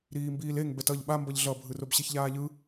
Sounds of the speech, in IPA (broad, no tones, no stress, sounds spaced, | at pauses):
ɾ iː m b iː l e ŋ b ɛ t ʌ ʎ ɓ a m b ʌ ʎ ɮ ʌ bʱ ɯ r o b ɕ e ç ʎ aː ʎ ɯ